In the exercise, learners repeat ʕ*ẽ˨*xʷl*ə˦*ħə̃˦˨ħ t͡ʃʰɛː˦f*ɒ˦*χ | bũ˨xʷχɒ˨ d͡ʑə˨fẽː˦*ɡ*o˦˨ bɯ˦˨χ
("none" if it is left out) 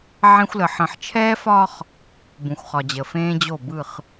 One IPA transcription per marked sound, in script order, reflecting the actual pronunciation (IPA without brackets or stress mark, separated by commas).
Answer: ẽ˦, ə˨, ɒ˦, d͡ʑ